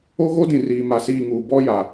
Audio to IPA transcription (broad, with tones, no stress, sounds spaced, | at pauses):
o˦ ɣ o˦ d ĩ˨ r iː˨ m a˨ s iː˦˨ ŋ uː˨ b ɔ˦ j a˨